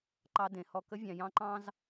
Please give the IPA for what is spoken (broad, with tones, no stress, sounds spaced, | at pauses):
ǃ ɑ˦ d ẽ˨ h ɔ˦ k ə˦ vʲ ɑ̃˨ j ɑ̃˦ ǃ ɑ̃˦ z